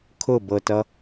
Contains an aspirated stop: yes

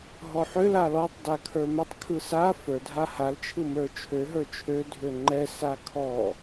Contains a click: yes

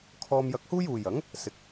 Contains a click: no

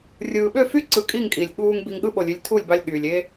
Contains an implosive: yes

